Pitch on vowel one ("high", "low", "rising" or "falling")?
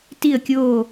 falling